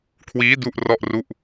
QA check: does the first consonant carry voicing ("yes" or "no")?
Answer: no